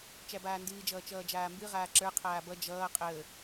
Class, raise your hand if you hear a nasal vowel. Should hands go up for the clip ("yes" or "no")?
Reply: no